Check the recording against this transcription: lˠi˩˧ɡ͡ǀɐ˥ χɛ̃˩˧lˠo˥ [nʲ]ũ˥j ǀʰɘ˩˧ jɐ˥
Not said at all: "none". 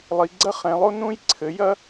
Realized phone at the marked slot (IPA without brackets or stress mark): n